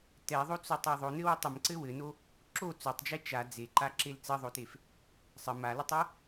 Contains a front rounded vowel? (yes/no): no